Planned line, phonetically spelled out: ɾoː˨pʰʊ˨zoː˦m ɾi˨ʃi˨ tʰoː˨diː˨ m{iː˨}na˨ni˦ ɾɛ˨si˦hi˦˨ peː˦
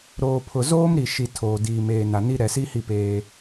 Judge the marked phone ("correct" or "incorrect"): incorrect